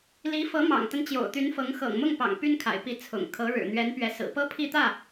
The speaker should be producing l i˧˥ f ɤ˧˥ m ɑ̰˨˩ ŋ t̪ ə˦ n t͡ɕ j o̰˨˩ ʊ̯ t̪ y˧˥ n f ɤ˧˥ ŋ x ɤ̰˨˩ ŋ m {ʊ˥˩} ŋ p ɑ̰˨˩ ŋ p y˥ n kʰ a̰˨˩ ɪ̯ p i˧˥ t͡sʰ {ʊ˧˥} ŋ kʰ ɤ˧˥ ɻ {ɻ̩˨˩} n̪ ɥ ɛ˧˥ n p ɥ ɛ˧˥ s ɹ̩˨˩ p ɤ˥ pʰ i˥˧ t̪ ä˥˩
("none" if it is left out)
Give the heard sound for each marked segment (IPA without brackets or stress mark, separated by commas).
ʊ˥˩, ʊ̰˨˩, ɻ̩˨˩